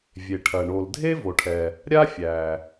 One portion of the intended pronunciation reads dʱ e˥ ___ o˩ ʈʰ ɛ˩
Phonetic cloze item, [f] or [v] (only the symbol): v